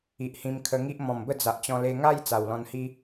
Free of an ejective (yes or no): yes